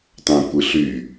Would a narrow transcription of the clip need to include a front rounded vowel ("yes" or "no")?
yes